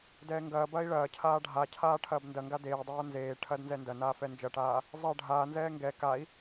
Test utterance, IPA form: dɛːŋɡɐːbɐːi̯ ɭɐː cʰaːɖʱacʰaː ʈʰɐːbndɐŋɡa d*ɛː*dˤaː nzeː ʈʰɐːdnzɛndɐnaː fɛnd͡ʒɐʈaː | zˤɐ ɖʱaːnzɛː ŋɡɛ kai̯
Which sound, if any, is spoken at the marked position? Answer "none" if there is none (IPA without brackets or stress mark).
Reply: eː